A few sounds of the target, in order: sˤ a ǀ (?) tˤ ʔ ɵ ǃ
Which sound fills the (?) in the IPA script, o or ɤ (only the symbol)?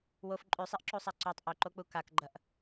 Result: o